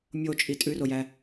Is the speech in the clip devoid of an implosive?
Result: yes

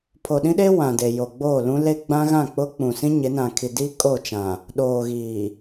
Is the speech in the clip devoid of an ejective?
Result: no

